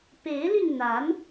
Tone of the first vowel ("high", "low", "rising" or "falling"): rising